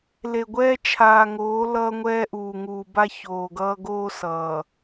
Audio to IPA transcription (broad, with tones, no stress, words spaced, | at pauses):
le˨ɡʷɛː˦ t͡ʃʰaː˨ŋoː˨˦ lʌː˦ŋʷɛː˦ʔuː˨ ŋuː˨ba˦ çoː˨ɡʌː˦ ɡoː˦ sʌː˨